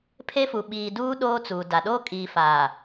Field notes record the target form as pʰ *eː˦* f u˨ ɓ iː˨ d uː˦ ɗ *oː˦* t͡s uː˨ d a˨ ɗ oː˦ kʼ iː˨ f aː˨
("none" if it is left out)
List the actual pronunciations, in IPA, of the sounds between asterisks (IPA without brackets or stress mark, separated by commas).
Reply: e˦, oː˦